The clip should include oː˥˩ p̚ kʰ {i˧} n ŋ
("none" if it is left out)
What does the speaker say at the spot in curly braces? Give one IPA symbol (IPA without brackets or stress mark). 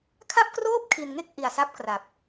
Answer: i˧